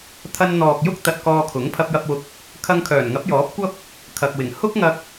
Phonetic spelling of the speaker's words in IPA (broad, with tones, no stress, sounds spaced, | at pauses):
t̪ʰ ɐ˥ n n̪ ɔː˨ k̚ j ʊ˥ k̚ t̪ ɐ˧ t̚ k ɔː˧ kʰ ʊ˨˥ ŋ pʰ ɐ˧ p̚ j ɐ˧ p̚ w ʊ˧ k̚ | kʰ ɐ˧ ŋ kʰ œː˨˩ n ŋ ɐ˨˥ p̚ j ɔː˨˥ p̚ kʷ ɐ˥ p̚ | kʰ ɐ˨ k̚ w ɪ˨˩ ŋ h ʊ˥ k̚ ŋ ɐ˧ k̚